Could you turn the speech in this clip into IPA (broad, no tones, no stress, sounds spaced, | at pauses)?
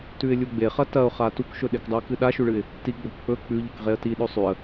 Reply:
t ʉ ɪ̯ lʲ u ɡ͡b e χ ɐ t ɐ ʊ̯ χ a t u k ʃ ɵ ɗ e k dˤ u ɪ̯ k ɨ ɗ a ʃ ʉ ɭ ɨ ɪ̯ | t i ɡ͡b o k k͡p ɵ k͡p ʉ ʎ ɨ k ʁ e ə̯ t i ɗ ɵ sˤ ʉ ə̯